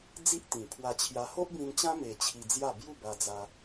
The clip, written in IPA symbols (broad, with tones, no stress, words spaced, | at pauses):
d͡zi˦ʔt̪ĩ˨˩pʰwa˧ t͡ɕʰja˧ ho˦ʔbĩ˧nt͡ɕã˦ me˧t͡ɕʰi˧d͡zja˥˧ bju˥˧ba˧d͡za˧